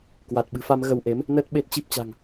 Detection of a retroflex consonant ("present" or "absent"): absent